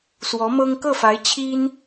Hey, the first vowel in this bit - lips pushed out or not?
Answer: yes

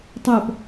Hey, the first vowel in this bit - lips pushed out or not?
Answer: yes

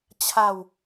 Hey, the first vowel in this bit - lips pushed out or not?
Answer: no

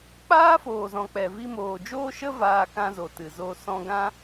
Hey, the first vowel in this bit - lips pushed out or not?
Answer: no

